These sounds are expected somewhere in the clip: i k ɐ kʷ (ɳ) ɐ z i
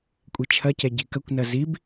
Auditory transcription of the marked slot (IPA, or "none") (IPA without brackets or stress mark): n